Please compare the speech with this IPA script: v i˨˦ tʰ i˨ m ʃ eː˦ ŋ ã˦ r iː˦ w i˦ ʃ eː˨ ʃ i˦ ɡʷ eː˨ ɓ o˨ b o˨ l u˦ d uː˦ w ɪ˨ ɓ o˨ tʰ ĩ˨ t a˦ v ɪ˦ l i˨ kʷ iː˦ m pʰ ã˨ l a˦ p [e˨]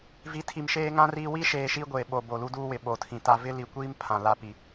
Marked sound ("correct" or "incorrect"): incorrect